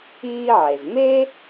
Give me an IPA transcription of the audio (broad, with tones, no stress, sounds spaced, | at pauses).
iː˥ ʕ e˩ z m e˥